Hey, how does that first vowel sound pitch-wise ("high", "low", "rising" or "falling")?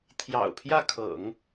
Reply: low